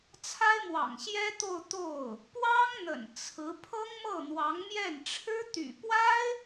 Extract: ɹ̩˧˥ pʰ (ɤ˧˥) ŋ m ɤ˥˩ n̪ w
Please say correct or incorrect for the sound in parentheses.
incorrect